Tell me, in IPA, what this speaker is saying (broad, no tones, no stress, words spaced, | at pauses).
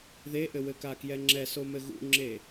ðeʔɘwɘka kjɛŋ͡ǁɛsomɘ ɣṵŋ͡ǁe